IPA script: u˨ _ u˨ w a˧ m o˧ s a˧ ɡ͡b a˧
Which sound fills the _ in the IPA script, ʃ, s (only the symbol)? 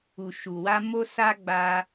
ʃ